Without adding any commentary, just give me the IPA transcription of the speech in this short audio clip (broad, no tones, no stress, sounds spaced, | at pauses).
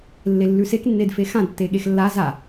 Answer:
lː e lː ʉ s e k nː e d f e x ã d tː e ɠ e x lː a z a